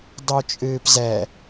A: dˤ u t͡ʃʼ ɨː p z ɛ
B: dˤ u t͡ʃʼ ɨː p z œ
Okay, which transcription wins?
A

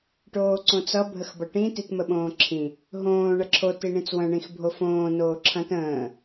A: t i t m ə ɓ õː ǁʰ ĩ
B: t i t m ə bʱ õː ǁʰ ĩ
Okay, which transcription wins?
A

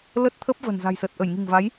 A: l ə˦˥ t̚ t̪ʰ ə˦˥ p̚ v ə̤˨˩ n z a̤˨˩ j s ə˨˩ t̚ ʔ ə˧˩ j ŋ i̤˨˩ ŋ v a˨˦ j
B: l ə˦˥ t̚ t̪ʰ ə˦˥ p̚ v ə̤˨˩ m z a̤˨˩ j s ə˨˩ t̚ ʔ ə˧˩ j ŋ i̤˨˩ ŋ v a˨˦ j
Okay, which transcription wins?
A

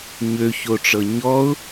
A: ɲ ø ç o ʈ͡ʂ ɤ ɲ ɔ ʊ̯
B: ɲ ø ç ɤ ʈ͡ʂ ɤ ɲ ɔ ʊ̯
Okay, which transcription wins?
A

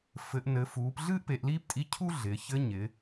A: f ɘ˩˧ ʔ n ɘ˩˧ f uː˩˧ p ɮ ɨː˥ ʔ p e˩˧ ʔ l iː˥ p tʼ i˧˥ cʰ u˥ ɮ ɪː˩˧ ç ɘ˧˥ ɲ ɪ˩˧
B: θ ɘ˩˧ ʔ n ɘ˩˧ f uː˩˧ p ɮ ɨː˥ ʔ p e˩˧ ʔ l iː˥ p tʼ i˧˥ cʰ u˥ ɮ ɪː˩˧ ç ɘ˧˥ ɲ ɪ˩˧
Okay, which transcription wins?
A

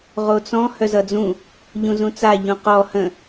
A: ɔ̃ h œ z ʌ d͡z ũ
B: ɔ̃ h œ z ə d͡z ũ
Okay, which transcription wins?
A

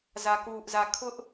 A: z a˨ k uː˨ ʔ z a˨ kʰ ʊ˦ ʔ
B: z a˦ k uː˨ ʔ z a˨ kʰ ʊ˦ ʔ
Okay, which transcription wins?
A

